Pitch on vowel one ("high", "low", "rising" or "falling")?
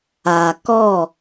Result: low